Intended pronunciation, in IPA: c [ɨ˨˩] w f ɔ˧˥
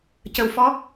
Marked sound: incorrect: ə˨˩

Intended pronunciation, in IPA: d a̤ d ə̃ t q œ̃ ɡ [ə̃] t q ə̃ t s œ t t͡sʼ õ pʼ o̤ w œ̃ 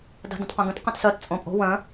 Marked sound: correct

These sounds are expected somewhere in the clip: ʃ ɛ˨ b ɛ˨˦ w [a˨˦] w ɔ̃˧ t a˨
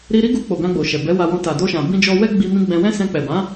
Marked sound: incorrect: a˧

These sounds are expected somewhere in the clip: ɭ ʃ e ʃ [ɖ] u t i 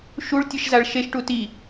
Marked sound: incorrect: ʈ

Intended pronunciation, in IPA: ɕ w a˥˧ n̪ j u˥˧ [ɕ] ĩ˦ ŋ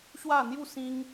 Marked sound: incorrect: s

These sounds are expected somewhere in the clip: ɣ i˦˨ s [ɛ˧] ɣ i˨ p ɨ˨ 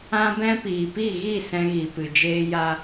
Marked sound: incorrect: ɛ̃˧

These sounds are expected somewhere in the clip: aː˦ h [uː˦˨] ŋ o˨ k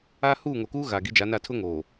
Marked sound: correct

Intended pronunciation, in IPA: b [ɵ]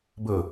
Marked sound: correct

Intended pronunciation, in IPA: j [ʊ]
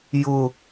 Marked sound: correct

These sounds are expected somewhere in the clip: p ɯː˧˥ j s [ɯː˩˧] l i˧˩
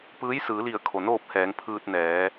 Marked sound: correct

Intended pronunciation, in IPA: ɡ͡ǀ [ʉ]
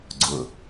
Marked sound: incorrect: ʊ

